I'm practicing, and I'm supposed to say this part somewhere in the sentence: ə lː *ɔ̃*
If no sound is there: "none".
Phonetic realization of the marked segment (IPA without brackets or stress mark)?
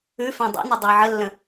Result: ə̃